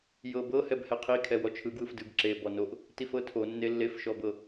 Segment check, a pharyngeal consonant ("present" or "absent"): absent